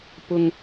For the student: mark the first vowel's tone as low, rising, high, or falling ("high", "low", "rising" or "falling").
low